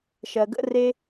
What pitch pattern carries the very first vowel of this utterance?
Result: low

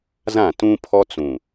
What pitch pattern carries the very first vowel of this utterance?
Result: falling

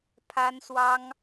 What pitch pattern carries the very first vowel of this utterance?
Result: high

